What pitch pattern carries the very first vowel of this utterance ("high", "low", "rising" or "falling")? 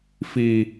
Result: high